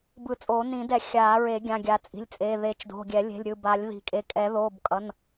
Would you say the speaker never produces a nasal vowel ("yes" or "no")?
no